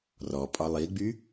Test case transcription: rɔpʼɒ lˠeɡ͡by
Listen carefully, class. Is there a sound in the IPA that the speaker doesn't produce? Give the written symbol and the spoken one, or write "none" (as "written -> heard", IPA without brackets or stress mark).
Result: e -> i